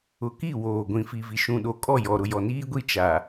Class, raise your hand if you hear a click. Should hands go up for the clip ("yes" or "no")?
no